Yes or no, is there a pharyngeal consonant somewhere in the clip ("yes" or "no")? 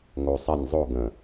no